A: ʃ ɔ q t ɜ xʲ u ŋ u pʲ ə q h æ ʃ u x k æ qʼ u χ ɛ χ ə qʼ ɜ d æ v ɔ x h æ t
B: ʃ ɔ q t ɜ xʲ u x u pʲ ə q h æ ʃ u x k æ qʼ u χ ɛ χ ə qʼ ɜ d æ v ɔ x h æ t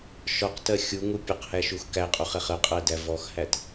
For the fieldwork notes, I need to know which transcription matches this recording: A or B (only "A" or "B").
A